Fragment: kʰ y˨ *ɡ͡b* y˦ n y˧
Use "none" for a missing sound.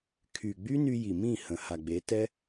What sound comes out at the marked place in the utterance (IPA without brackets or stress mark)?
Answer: ɡ͡b